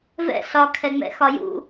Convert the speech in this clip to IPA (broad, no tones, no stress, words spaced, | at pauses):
vɛ̰ ɬɒkʰɛŋ͡mɛ̰ xɒjṵ